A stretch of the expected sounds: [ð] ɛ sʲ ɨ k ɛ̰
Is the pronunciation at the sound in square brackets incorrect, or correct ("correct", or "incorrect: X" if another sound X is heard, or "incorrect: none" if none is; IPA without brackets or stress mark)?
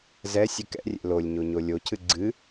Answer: incorrect: z